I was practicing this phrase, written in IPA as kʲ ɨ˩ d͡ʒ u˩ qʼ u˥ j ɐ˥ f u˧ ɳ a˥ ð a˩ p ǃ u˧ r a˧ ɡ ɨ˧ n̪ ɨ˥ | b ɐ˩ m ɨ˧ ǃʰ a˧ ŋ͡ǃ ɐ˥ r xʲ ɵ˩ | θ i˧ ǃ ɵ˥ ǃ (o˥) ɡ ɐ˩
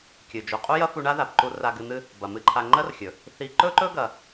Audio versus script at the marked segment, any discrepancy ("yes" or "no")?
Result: yes